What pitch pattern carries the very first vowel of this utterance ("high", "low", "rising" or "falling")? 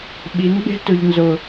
rising